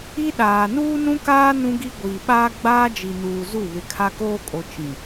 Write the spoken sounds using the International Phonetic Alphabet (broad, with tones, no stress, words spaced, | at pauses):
i˦ɗaː˨ nuː˦nũ˦kaː˦ nũ˦ɡi˦ ɡʷiː˨ɓaː˦ ɡ͡baː˦d͡ʒi˨nuː˨ zu˦˨ βɪ˨kʰa˦koː˦kʼo˨ t͡ʃĩ˨